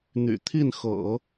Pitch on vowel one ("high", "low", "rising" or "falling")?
low